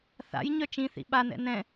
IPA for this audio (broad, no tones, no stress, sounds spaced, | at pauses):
θ a̰ j ɲ œ t͡ʃ ĩ θ ḭ ɓ a n ɛ̰ n ɛ̃